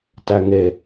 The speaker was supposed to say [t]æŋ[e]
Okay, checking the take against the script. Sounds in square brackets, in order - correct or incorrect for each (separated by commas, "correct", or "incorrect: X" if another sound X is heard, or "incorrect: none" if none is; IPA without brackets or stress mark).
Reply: correct, correct